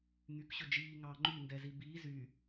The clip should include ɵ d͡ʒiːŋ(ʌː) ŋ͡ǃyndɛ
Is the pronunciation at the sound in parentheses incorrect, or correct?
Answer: incorrect